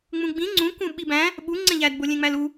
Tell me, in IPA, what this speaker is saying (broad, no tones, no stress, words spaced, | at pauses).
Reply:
ŋ͡mũɡ͡bĩ ŋ͡ǀũkũ ɓibæ̃ | ɓu ŋ͡ǀẽʎædbo lʲẽŋ͡mælu